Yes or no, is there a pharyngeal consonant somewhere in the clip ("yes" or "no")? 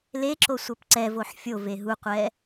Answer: yes